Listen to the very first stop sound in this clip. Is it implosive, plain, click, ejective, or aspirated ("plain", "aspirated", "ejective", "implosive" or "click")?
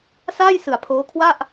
aspirated